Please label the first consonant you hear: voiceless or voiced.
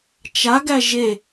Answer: voiceless